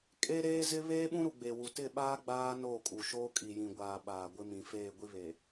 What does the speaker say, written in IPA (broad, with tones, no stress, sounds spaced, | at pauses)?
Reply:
kʼ e˦ ɾ eː˦ z ɪ˦ β eː˦ ɓ ũ˦ ɾ u˨ ɡ͡b e˨ w u˨ t ɪ˦˨ ɓ aː˦ ɡ͡b aː˦ n oː˦˨ kʼ u˨ ʃ oː˦ kʼ i˨ j ĩ˨ ɡʷ aː˨ ɓ aː˨ ɡʷ ɪ˦ m ĩ˨ f eː˦˨ ɡʷ i˦ β e˨